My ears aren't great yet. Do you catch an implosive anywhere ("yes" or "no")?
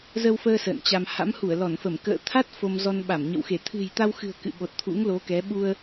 yes